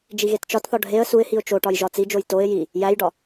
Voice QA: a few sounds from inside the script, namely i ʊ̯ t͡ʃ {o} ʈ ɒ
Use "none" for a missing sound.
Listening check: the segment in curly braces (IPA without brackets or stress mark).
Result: o